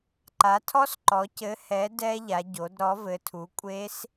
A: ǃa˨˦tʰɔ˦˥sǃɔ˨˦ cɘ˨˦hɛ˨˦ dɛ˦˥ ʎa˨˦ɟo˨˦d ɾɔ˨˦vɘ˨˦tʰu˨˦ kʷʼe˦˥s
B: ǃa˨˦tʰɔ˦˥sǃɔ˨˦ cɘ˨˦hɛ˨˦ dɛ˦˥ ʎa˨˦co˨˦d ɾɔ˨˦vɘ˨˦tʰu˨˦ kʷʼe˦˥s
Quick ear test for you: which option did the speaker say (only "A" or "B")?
A